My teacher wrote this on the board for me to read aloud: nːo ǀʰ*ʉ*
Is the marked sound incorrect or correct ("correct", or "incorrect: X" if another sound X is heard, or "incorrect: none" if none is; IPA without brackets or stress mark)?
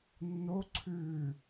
correct